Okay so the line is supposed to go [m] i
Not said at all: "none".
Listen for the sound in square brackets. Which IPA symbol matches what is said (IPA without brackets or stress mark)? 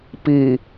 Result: p